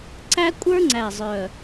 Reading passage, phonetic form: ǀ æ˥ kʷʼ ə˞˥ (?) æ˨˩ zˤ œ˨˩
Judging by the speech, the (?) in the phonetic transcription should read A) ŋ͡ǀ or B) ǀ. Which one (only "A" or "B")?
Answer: A